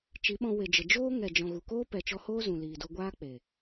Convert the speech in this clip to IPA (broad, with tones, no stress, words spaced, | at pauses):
t͡ʃi˨˦ɓɔ̃˧ we˨d͡ʒə˨d͡ʒoː˦ ŋɛ˨d͡ʒɔ̃˨ ɣu˨koː˦ pɛ˨t͡ʃɔ˧ hoː˦zũ˨ liː˨do˧ɡʷaː˦ k͡pe˨